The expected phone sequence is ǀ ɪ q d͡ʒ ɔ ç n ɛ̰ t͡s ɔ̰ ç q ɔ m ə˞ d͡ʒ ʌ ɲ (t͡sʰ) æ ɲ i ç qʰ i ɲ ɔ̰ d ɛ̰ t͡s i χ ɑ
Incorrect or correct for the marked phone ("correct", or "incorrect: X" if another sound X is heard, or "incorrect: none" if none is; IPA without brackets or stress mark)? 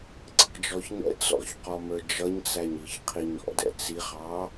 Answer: incorrect: t͡s